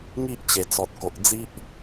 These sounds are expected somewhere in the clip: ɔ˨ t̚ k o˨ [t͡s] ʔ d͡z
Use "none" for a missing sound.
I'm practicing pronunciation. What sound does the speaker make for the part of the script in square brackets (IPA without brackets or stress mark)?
none